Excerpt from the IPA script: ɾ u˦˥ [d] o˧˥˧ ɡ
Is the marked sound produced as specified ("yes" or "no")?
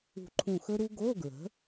no